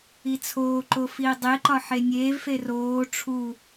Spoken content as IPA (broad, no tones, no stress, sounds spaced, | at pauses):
i t͡sʰ oː ǃ o f iː dˤ e ǃ ɒ ħ e nʲ eː v f e r oː ʈ͡ʂʰ u